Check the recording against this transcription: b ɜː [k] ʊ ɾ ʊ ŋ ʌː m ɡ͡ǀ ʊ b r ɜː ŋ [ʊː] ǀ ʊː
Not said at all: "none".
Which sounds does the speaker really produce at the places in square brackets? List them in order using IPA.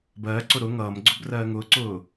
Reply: ǀ, ʊː

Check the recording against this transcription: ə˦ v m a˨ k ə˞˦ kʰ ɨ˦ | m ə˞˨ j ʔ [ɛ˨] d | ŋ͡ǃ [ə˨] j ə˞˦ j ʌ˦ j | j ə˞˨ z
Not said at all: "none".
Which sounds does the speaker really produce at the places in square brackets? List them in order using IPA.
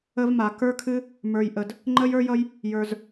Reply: ə˨, ə˦

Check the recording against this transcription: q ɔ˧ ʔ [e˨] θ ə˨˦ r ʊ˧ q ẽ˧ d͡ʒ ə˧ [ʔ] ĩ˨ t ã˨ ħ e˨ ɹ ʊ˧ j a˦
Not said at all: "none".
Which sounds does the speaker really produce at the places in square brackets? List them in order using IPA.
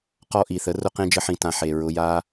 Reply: i˨, ħ

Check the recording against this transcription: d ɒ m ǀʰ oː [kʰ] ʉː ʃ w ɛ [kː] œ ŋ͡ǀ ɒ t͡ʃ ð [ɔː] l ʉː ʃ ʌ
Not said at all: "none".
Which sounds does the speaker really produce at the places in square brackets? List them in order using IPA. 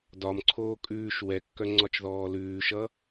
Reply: kʼ, kː, ɔː

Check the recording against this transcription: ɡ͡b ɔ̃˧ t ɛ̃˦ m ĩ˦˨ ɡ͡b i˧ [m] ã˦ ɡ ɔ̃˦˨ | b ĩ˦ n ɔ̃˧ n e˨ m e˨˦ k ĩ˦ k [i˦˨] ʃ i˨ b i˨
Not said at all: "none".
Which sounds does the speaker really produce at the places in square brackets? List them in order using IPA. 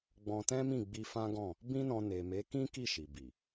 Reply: f, i˦˨

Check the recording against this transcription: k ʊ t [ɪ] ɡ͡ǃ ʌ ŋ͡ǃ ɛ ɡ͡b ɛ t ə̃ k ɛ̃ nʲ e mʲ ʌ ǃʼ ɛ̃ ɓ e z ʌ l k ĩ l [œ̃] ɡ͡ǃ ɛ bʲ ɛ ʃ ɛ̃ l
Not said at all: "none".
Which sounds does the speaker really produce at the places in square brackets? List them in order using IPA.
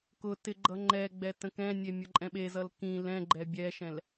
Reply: ɪ, ɛ̃

